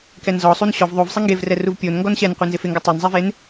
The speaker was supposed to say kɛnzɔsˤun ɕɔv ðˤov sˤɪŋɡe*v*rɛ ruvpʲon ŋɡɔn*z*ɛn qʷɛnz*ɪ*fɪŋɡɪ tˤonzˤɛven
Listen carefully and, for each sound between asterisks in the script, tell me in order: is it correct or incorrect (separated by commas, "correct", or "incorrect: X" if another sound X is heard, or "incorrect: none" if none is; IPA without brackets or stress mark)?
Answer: correct, incorrect: ɕ, correct